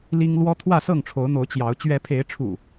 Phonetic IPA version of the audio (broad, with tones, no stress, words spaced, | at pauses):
li˦ŋ lwɔ˦ t̪ʰwä˥˨sɤ˥˨ŋʈ͡ʂʰo˨˦ʊ̯n̪o˨˦ʊ̯ t͡ɕjɑ˨˦ʊ̯ t͡ɕɥɛ˨˦pʰe˨˦ɪ̯ʈ͡ʂʰṵ˨˩